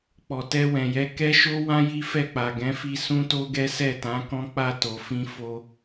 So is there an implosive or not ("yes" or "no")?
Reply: no